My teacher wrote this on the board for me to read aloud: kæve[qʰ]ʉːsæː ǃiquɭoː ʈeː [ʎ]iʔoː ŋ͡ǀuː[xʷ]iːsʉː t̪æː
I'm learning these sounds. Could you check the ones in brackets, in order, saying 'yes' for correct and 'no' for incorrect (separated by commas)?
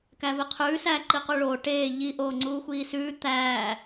yes, yes, yes